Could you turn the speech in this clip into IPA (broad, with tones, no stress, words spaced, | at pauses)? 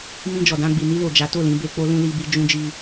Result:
mĩ˧d͡ʒɔ˨dã˧ɡ͡bi˨ ni˧lo˨ d͡ʒa˨˦to˦˨lĩ˧ be˧k͡po˦lũ˦ li˦bi˦ d͡ʒũ˦d͡ʒi˦